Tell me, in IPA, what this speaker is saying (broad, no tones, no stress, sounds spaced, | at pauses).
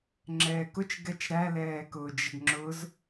ŋ͡ǁ ɛː k ʊ t͡ʃ ɡ ɛ t͡ʃ ɾ æ l ɛː k ʊ d͡ʒ ə ɡ ŋ͡ǁ ʊ z